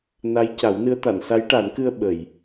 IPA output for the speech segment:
n a˧˥ j c a˨˩˦ w n ɨ˧˥ ə̯ t̪ a˨˩˨ n s a˧˥ j ʈ a˨˩˦ n k ɨ˧ ə̯ ɓ ə˨˩˨ j

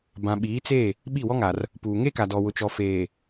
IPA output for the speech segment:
b ã˨ ɓ iː˨˦ t͡s e˦˨ | ɓ i˦˨ w ɔ˦ ŋ a˨ r | p uː˨ ŋ e˦ k a˨ d ɔ˨ w ʊ˨ t͡ʃ ɔ˨ f eː˨

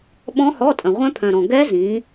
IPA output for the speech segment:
ɓ ɔ̃˦˥ h ɔ˧˥˧ tʼ ə̃˨ ʁʷ œ̃˦˥ pʰ œ̃˨ ɾ ɔ̃˨ ɡ ɛ˦˥ z ĩ˨˦

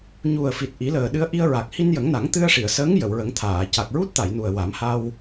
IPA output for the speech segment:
ɲ u˨˩ ə̯ f i˨˩ t̚ ʔ i˨˩˦ l əː˨˩ ɗ ɨ˧ ə̯ ʔ i˧ ə̯ ɹ a˨˩ k̚ h i˧ n j ə˨˩˦ ŋ n a˨˩˦ ŋ t̪ ɨ˧ ə̯ ʂ i˨˩˨ ə̯ s əː˧˥ ŋ j ə˨˩˨ w ɹ ə˨˩˦ ŋ t̪ʰ aː˨˩˨ c a˨˩ k̚ ɹ u˦˥ t̚ t̪ a˨˩˨ j n u˨˩ ə̯ w a˨˩˦ m h a˧ w

